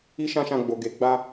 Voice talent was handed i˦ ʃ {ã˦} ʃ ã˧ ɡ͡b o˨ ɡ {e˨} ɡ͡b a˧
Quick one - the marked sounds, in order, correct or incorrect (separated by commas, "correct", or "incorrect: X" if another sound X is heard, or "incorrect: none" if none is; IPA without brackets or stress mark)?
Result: correct, correct